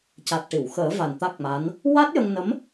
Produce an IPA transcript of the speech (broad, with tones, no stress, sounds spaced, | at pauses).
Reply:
c a˨˩ t̚ ʈ i˨˩˨ w x əː˨˩˦ v a˨˩ n t̪ a˦˥ k̚ m a˧˥ n | w a˦˥ t̚ j ə˧ ŋ n ə˧˥ m